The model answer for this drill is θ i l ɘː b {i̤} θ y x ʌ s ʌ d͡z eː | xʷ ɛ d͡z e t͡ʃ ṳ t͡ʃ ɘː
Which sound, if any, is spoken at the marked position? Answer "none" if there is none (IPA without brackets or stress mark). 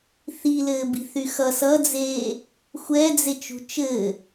i̤